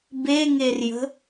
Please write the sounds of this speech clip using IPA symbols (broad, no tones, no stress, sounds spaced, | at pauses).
b e ŋ e r j ə̤